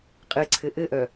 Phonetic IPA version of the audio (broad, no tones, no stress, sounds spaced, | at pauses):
qʼ ɘ ǀʰ ɘ ʔ ɘ ʔ œ